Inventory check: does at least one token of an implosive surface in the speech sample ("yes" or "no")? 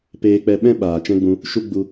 yes